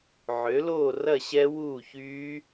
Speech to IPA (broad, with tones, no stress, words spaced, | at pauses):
ʕø˨˥loː˥˨rɐ˥˨ɕɛ˦˥ wuː˥˨çyː˦˥